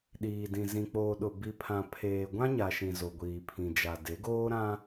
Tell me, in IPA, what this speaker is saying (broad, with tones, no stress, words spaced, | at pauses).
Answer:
ɗiː˨dĩ˨ zĩ˨k͡poː˨ɗʊ˨ bi˨pʰã˨pʰeː˨ ɡʷã˦ɲa˨ʃĩ˨ zo˨ɡʷiː˨pʰĩ˨ d͡ʒa˨ de˨˦ɡoː˦ɾã˦